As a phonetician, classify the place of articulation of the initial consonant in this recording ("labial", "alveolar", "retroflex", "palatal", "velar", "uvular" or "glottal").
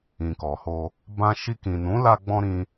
velar